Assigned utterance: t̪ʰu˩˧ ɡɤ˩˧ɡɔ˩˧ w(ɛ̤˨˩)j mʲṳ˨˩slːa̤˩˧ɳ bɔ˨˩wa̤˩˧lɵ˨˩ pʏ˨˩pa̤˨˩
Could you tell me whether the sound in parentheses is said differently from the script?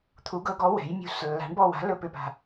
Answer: yes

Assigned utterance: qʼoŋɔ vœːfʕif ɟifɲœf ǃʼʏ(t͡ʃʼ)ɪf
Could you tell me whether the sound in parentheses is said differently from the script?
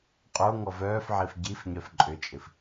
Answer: no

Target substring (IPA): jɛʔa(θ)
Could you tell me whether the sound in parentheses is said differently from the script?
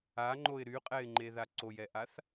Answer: no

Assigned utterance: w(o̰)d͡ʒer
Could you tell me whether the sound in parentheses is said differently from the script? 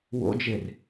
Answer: no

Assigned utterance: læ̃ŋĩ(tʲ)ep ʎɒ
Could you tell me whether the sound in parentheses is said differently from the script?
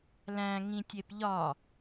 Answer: no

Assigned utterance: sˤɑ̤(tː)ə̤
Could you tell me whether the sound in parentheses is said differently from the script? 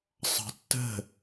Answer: no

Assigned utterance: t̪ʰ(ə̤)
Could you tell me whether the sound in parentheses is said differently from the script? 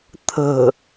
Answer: no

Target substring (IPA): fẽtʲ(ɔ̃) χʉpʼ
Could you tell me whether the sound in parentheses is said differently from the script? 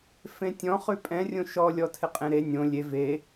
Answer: no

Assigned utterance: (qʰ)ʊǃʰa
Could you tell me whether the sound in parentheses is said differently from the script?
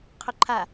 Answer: no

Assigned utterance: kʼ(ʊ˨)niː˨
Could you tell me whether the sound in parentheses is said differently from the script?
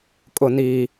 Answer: no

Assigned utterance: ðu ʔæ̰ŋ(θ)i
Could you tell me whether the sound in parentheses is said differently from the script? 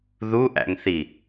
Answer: no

